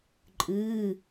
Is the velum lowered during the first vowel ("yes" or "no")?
no